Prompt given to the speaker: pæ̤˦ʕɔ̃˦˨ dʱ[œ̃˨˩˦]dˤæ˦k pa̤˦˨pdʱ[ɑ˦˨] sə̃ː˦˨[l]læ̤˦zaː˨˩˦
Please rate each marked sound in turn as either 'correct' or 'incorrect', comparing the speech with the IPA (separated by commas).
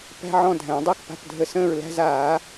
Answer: incorrect, incorrect, incorrect